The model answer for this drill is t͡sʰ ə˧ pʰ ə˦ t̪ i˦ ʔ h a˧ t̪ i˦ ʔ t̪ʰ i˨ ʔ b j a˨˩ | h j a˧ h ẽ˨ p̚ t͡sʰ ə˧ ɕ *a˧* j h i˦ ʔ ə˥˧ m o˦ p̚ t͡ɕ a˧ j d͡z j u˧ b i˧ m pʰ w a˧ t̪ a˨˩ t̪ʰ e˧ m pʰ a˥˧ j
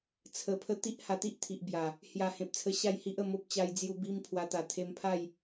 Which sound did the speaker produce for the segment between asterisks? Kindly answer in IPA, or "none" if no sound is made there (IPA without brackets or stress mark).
a˥˧